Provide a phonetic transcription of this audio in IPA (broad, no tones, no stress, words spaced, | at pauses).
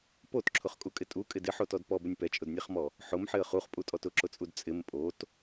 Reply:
potǁʰʊχkʼukʼɪ tʼukʼɪ dɪħotɔd pɔbʊnʲ pɛt͡ʃʼʊdnʲɛχmɔ | ħʊmħɪə̯ χuχpʼutʼɔt ʊǁʊt͡sʼud t͡sʼɪm pʼot